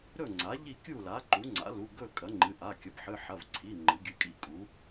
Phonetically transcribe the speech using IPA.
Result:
ɾɵ˥˨ ŋ͡ǀa˩˥ʎi˥˨ kʲu˥˨la˩˥ ǃu˩˥ŋ͡ǀa̰˩˥lu˩˧˩ ɡɵ˥˨ kʼɐ˩˥ŋ͡ǃɨ˩˧˩ʔa˩˧˩ kʲɐ˩˥pħɨ˩˧˩ħɐ˩˧˩vǀʰi˩˧˩ ŋ͡ǃɨ˩˥ ɡʲɨ˩˧˩kʼḭ˥˨kʼu˩˥

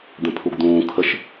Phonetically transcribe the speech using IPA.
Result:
d̪ɛ̃pʰuɡd̪ũː kʰəʃ

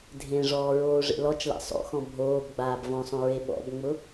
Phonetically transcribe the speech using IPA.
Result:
dʱẽʐɔː ɹoːʐḛlɔt͡ʃla̰ sˤo̰xɔ̃ bʱoːb ɡ͡baːbvɔ̃sˤõ ɹeɓɔ̰bŋ͡mʊ

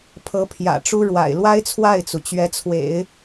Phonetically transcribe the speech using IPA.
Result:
pʰɤ˧˥pʰjä̰˨˩ʈ͡ʂu˥ ɻwa̰˨˩ɪ̯lwa˥ɪ̯t͡sʰwa˥˩ɪ̯t͡su˩ t͡ɕɥɛ˧˥t͡sʰwḛ˨˩˦ɪ̯

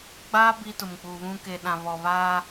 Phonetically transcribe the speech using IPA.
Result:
ɡ͡ba˦ bi˦tʊ˨mk͡pu˨βũ˦ ke˨ɗã˨βɔ˨βaː˦

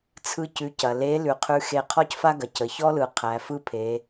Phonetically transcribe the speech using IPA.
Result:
t͡sʰɯ˥cʉ˧˥cɐ˩ le˧˥ lʉ˩qʰʉ˧xe˧ qʰɔ˥cfa˥ɡɐ˩ cə˩çɔ˥lɯ˩ qʰæ˩˧fɯ˥pʰe˩˧

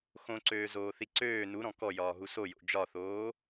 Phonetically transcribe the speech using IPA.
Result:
xõǀøːzoːθi ǀøː nuɾɔ̃ kɔjɒːɦu sojo̰ d͡ʒɒθoː

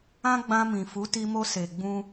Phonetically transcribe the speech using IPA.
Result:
ã˦ɡ͡bã˧mĩ˨fu˨˦ ti˧mo˧ se˨ɡ͡bũ˧

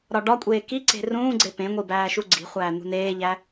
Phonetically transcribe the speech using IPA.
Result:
ɾɒɖɒkʷʼeː kiǀe̤ rũːɡ͡ǀe pẽŋʷi bæːʃuɡ͡ǀi̤χʷæː n̪ṳneːʎæ

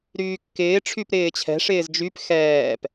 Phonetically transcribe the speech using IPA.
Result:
ɾyːkːɪː ʈ͡ʂʰypɾɪːt͡ɕʰɛ̤ ʂɪːzd͡ʒyp xɛːp

